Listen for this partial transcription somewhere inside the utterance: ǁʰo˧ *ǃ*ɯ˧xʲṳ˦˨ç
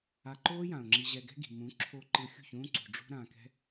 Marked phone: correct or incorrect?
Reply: correct